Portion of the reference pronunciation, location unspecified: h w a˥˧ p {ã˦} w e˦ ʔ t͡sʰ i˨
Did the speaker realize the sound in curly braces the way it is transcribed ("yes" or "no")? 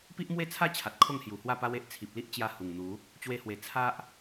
no